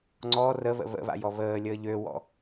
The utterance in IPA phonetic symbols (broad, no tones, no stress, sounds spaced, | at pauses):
ŋ͡ǀ ɔ r ə β ə̰ β ə̰ β a̰ j ɔ β əː lʲ əː ʎ ø w ɔ̰